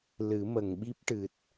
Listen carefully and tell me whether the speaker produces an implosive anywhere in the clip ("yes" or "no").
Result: yes